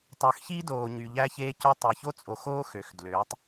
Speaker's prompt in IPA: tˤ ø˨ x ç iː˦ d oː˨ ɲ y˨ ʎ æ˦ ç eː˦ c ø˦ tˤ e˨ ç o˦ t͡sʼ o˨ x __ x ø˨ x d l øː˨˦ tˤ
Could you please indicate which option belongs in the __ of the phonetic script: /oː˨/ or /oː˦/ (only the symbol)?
oː˦